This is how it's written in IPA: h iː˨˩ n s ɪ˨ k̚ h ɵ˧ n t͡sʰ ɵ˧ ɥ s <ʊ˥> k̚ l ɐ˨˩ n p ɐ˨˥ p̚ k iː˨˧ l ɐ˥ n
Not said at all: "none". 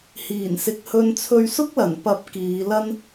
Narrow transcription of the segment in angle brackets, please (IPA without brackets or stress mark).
ʊ˥